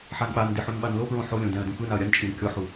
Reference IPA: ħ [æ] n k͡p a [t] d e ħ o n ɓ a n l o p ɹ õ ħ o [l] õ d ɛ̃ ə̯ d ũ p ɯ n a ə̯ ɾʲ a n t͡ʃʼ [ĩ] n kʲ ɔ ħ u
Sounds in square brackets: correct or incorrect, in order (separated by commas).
incorrect, incorrect, incorrect, incorrect